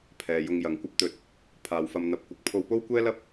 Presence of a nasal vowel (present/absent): absent